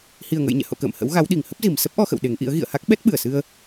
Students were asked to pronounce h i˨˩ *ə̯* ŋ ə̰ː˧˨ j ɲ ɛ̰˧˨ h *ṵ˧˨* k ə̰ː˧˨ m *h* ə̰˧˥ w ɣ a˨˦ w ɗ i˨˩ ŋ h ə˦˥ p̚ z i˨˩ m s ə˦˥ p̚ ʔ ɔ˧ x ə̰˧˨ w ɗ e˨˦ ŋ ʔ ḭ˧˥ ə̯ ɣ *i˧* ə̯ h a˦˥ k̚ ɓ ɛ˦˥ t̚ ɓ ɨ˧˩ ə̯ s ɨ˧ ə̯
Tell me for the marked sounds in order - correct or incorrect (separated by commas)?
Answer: correct, incorrect, correct, incorrect